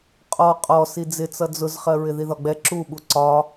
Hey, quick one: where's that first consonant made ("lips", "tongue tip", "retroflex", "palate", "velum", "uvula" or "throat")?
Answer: uvula